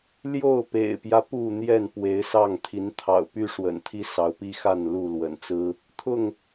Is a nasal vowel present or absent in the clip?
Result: absent